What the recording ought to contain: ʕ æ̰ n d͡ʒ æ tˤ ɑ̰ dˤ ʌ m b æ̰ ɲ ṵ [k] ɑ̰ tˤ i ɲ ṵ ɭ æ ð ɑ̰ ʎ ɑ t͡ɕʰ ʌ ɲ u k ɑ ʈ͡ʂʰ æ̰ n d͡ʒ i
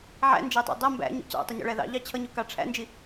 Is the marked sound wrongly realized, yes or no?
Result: yes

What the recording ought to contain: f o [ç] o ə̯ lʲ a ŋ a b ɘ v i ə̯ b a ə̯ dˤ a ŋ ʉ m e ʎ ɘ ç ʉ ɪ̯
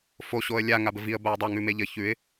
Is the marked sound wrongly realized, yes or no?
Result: yes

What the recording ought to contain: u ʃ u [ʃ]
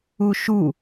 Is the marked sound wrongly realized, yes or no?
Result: yes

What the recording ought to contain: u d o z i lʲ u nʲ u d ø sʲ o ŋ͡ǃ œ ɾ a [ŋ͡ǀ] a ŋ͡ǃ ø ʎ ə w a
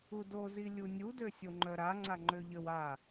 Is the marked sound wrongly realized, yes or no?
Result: no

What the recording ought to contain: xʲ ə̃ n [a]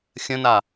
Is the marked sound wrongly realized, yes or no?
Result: no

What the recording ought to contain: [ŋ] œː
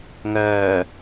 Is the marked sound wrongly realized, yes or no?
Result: no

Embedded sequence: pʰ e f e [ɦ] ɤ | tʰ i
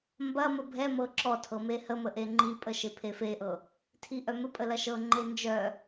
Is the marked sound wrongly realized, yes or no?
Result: yes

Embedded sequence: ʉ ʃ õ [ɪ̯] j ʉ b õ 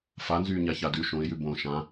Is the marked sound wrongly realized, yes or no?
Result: no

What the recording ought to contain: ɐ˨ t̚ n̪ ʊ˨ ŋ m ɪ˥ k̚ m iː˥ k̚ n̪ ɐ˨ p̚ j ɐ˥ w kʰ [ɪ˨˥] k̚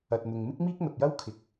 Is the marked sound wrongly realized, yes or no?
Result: no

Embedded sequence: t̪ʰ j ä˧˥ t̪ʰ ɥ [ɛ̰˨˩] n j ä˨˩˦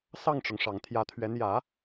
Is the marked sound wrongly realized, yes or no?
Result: yes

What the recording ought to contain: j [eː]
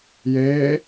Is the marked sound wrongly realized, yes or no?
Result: no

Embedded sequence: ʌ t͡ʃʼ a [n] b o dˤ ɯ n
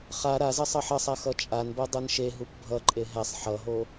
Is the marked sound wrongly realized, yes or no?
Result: no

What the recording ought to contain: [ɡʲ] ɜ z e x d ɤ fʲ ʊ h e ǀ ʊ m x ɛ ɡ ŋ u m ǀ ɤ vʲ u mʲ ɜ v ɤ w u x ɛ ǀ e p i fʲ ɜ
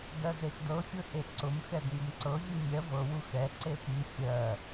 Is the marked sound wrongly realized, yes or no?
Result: yes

